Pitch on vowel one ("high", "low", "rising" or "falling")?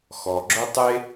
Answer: low